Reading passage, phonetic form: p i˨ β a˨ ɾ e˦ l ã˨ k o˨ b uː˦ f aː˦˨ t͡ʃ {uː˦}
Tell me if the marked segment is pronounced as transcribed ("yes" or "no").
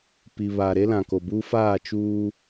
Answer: yes